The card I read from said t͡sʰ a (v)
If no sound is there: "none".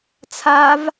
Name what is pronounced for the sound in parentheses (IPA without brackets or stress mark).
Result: v